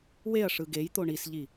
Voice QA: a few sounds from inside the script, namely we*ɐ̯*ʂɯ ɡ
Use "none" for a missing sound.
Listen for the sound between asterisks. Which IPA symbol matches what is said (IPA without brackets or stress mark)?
ɐ̯